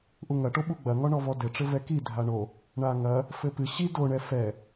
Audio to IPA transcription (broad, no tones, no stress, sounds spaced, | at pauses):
ʔ u ŋ ɐ ʈ o ɓ u ɡ͡b ɐ ŋ ɔ ɳ ɔ v ɔ d ɘ ʈ͡ʂ ɘ v ɛ k i dʱ a ɳ o | ɳ a ŋ ɐ | f ɘ p ɨ ɕ i d o ɳ ɛ f ɛ